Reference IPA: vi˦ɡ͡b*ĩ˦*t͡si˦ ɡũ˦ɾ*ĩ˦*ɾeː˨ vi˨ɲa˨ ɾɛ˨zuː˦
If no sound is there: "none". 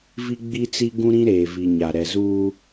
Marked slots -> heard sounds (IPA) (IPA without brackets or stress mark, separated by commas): i˦, ĩ˦